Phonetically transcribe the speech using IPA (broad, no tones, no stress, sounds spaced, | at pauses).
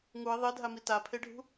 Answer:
ŋ u ɪ̯ ðˤ i dʱ a m i t a pʰ e ɖʱ ṳ